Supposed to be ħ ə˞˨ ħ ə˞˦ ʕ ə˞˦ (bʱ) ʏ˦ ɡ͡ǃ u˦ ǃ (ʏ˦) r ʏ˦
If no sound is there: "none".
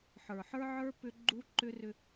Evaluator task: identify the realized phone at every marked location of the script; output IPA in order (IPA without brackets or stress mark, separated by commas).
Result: p, ʏ˦